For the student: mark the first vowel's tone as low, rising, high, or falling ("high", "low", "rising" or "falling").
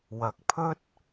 rising